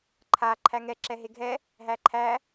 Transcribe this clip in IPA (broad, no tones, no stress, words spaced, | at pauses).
ǃʰa ǃʰæŋɛ ǁɛɦeɡʱɛ | ɦæǃʰæ